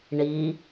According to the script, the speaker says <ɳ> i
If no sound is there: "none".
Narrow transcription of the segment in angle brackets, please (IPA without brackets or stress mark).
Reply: ɳ